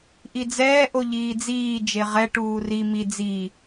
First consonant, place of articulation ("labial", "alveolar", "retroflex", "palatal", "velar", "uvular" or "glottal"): glottal